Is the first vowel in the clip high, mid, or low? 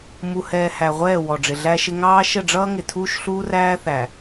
high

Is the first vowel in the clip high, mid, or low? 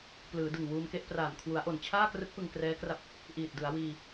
high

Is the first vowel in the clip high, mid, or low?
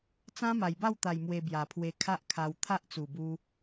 low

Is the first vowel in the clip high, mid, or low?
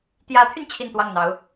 low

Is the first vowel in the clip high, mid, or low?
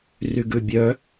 high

